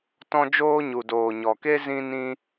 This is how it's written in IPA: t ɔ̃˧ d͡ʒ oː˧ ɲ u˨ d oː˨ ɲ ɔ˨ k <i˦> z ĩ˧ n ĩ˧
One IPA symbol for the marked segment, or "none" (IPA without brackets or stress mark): e˦